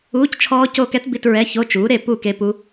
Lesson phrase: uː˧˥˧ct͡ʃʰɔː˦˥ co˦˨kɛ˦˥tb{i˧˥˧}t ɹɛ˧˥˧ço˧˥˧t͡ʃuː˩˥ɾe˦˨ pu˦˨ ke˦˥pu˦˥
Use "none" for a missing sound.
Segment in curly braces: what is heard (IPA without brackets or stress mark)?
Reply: i˧˥˧